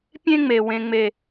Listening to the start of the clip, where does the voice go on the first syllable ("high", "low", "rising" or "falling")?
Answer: high